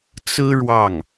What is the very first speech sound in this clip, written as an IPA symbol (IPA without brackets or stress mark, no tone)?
t͡s